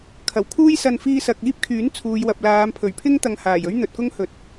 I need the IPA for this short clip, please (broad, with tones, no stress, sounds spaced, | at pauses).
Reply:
kʰ ɐ˨˩ w kʰ uː˥ j s ɐ˧ n f iː˧ s ɐ˨ k̚ iː˥ p̚ kʰ yː˨˥ n t͡sʰ uː˨ j w ɐ˨ p̚ l aː˨˧ m pʰ ɵ˨˩ ɥ pʰ ɪ˥ ŋ t̪ ɐ˧ ŋ h aː˨˩ j ɵ˥ ɥ n̪ ɵ˨ t̚ k ʊ˥ ŋ h ɵ˨˥ t̚